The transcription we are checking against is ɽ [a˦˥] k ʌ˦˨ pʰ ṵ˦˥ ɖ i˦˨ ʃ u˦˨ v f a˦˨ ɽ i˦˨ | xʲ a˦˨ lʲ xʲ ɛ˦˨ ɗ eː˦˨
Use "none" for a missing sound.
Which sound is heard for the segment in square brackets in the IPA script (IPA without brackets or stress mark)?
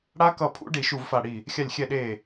a˦˥